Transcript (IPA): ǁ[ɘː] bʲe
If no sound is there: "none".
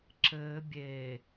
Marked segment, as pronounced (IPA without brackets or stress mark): ɘː